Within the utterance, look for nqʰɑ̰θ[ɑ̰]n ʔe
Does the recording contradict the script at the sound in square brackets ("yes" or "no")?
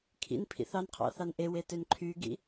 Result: yes